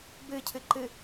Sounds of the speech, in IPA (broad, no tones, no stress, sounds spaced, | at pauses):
b ɨ cʰ ɨ ǃ ɨ